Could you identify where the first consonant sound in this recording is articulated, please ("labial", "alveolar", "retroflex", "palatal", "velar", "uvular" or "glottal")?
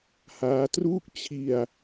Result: glottal